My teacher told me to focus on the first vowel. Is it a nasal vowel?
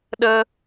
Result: no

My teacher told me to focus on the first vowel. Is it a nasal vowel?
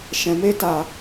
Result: yes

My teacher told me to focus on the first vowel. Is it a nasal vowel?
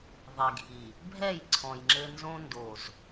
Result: no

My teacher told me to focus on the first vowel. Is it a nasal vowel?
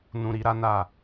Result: yes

